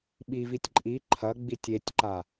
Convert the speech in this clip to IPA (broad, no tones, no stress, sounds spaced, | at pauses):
ɓ i v i tʲ ǃʼ i ǃʰ ɐ ɡ͡b i tʲ e tʲ ǃ a